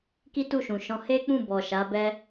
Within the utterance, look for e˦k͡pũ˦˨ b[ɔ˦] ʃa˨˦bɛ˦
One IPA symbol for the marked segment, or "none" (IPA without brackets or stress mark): ɔ˨